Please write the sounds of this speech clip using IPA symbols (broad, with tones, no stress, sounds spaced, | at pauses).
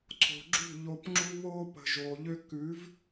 ǀʰ o̤˨ ɡ͡ǁ ṳ˦˨ ʎ o˧ p ŋ͡ǁ u˦ β oː˦ p ə̤˨ ʒ oː˨ ʎ ø˦ k ʉ˨˦ v